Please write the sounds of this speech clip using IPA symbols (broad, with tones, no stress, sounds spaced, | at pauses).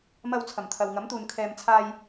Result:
m ɐ˧ w t͡sʰ ɐ˨˩ m t̪ʰ ɐ˨ w ŋ ɐ˨˥ m t̪ uː˨ n kʰ ɛː˨ m t͡sʰ aː˧ j